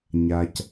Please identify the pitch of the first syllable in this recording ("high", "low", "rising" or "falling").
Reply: low